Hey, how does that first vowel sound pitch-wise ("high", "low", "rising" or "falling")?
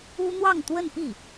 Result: high